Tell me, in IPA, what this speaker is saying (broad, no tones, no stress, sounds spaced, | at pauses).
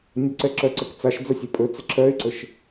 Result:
nʲ ə ǀ ɛ ǁ œ ǀ ɛ k t͡s a ʃ d͡z ə sʲ ɛ pʼ ɵ t͡s ə ǁʰ œ ɪ̯ ǀ ə ʃ